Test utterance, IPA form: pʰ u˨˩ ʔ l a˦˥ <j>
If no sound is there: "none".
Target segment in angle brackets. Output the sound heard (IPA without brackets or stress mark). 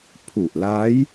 j